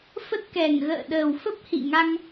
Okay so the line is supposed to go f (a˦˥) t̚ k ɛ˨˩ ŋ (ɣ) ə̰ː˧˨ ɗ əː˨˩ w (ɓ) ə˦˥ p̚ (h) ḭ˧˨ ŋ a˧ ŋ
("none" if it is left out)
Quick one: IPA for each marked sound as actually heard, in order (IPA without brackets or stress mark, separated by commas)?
ə˦˥, ɣ, f, h